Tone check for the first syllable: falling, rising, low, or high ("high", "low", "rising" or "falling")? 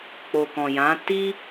low